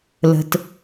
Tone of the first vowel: low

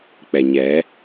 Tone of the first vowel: low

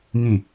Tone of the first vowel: falling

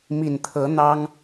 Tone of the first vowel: low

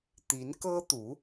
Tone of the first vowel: rising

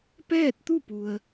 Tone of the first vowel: falling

